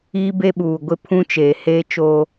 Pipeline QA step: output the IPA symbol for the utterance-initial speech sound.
iː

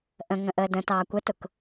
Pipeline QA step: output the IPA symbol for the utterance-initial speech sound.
ʔ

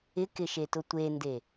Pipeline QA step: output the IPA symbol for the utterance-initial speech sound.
ɪ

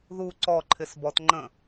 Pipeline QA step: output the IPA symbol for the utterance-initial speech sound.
ð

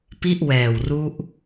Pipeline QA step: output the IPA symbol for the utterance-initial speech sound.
p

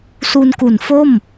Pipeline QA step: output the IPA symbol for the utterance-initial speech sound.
s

